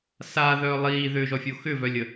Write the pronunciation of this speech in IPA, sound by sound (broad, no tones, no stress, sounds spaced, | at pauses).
s aː ð œː lˠ iː ð ʏː ʒ ɔ fʲ o x ʏ v œ lʲ ə